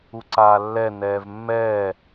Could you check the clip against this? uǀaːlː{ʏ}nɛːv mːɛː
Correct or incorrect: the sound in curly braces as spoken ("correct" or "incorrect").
incorrect